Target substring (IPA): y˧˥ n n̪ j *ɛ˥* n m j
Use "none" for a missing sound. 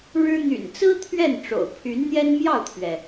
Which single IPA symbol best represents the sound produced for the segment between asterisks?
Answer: ɛ˥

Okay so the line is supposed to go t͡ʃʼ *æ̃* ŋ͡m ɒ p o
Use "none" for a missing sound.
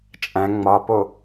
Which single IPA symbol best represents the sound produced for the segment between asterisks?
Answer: æ̃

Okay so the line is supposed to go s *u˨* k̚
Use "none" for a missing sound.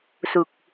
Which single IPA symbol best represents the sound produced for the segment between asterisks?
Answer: u˨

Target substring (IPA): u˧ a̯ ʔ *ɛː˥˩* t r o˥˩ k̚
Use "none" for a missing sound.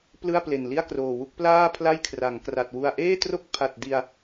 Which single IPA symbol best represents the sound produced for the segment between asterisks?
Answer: eː˥˩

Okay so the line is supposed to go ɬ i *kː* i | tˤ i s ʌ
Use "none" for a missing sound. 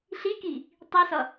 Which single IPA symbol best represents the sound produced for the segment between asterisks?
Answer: k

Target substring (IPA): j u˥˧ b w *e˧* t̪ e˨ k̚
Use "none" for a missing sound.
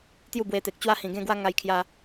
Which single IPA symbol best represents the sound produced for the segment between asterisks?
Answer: e˧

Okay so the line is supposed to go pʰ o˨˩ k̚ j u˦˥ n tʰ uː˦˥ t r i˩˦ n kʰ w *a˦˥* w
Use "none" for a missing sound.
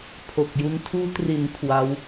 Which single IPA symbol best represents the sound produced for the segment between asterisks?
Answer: a˦˥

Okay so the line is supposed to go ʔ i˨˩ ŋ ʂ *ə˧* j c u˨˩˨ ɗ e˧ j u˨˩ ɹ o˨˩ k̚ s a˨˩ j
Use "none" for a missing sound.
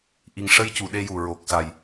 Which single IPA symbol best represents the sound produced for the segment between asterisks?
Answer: ə˧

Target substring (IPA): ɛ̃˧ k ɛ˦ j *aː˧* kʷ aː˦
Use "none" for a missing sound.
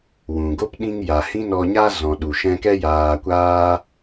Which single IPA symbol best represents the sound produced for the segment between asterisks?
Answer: aː˧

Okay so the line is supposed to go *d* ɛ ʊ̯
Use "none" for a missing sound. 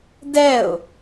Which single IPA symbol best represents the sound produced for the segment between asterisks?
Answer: d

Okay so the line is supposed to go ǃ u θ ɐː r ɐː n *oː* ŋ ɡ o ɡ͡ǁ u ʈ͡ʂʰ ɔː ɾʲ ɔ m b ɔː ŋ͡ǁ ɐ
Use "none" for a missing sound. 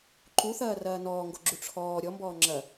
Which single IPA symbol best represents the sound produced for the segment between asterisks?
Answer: ɔː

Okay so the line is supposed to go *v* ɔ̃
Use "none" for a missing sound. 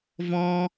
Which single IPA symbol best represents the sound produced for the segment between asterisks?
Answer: v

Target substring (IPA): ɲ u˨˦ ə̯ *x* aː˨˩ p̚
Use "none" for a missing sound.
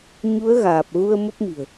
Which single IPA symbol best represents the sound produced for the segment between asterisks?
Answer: ɣ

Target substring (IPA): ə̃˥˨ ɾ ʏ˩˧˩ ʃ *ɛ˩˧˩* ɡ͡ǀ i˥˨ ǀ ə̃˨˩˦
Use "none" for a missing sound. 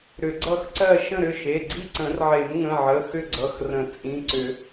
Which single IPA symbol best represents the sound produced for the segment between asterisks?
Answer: e˩˧˩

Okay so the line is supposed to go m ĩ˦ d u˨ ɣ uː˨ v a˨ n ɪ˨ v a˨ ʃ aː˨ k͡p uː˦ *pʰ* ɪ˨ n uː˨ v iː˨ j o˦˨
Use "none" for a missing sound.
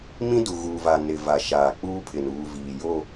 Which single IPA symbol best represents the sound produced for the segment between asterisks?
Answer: pʰ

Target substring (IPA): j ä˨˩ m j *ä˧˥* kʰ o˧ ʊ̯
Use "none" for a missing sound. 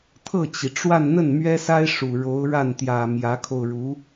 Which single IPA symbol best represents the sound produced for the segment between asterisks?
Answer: ä˧˥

